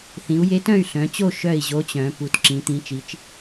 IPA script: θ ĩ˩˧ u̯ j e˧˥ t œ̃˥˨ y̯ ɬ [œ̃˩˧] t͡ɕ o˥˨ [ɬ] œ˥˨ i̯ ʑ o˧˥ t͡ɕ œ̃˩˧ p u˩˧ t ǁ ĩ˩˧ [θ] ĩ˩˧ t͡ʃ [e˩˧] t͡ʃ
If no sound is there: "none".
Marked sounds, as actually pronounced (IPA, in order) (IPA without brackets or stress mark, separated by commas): œ̃˩˧, ʃ, t̪, i˩˧